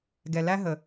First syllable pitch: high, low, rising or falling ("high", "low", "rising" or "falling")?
low